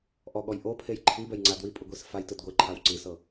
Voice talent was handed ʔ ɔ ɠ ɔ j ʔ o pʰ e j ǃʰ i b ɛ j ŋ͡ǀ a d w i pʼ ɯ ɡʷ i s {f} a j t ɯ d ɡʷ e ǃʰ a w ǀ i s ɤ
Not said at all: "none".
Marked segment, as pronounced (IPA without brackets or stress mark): f